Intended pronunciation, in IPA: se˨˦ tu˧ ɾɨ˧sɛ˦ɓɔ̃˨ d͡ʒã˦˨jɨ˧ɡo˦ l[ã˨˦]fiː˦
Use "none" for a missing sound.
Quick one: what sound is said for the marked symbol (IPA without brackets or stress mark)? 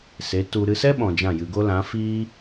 ã˨˦